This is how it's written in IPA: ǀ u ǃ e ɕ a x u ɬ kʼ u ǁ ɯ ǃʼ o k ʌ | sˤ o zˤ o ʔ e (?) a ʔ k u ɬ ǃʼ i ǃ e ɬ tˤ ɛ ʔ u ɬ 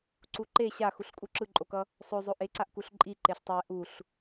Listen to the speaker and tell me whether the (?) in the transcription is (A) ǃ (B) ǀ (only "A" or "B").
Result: B